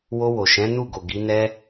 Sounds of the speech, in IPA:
w o˧ w o˨ ʃ ɛ̃˨˦ n u˦˨ ɡ o˨ ɡ i˨˦ n ɛ˦

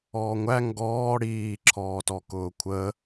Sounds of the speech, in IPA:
ɔː ŋʷ æ ŋ ɡ ɔː ɽ iː ǁʰ ɔː t ɔ k ʊː kʷʰ ə

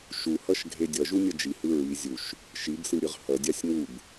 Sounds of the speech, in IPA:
ʃ u h ʌ ʃ ɡʱ e dʲ ʌ ʒ u nʲ ʌ d͡ʒ i h ɯ ɹ i zʲ u ʃ | ʃ i b s ɯ ɾʲ ɯ ʁ h ʌ dʲ a sʲ ŋ u b

